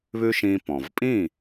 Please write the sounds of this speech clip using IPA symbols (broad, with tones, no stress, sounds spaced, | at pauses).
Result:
β ʉ˥ ʃ ĩː˧ p ɔ̃˩ v pʼ ĩ˥˩